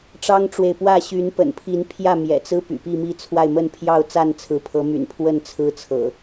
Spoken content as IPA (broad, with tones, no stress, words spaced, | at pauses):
ʈ͡ʂɑ˦ŋʈ͡ʂwe˨ɪ̯pwä˥˨ ɕy˨˦npə̰˨˩npʰi˨˦n pʰjä˥˨mjɛ̰˨˩t͡sɹ̩˦ py̰˨˩pi˥˨mi˥˨t͡sʰwa˥˨ɪ̯ mə˥˨npʰjɑ˥˨ʊ̯t͡sa˥˨n t͡sʰɹ̩˨˦pʰɤ˨˦my̰˨˩n pʰwə˥˨n t͡sʰɹ̩˦t͡sʰɤ̰˨˩